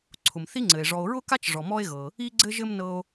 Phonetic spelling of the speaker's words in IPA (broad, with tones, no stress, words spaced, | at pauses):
ǀʰʊ˩mθi˥ŋ͡ǀɘ˩e̯ ʐɔ˨o̯ɹʊ˥ka˥t͡ʃ ʐɔ˩mɔ˦e̯ɣɤ˩ | i˦ɡ͡ǀɘ˦ʒɘ˦m nɤ˦o̯